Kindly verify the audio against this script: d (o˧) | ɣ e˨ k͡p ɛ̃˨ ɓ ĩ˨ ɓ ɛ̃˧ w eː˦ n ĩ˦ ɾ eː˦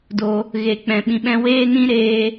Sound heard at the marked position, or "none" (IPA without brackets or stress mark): o˧